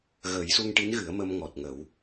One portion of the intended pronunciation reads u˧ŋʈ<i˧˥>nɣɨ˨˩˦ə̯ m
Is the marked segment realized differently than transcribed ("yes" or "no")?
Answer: no